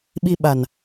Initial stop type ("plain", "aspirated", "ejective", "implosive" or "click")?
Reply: implosive